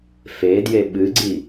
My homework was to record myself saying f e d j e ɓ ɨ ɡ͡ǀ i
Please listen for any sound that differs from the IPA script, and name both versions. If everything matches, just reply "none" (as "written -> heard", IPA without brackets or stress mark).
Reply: none